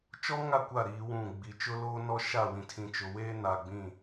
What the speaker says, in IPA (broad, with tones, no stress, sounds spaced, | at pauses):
t͡ʃ ɔ˦ ŋ a˦˨ kʷ a˦˨ ɾ iː˦ w ũ˦˨ ɡ͡b i˨ t͡ʃ ʊ˦ l oː˦ n ɔ˦ ʃ a˦˨ w ĩ˨ tʰ ĩ˨ t͡ʃ ʊ˨ w eː˦ n a˨ ɡ͡b ĩ˦˨